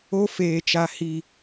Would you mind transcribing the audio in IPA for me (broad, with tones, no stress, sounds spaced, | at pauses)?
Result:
o˦ f eː˨ t͡ʃ a˨ h i˨